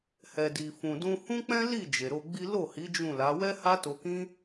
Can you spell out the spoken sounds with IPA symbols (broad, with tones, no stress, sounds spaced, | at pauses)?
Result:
h ɛ˨ d i˨ f ũ˨ d ũ˧ h ũ˦ k͡p ɛ̃˦ l i˦˨ d͡ʒ e˨ ɾ o˧ ɡ͡b i˦ l o˦˨ h i˨˦ d͡ʒ ũ˦˨ l a˨˦ w ɛ˦ h a˦ t o˧ k ĩ˦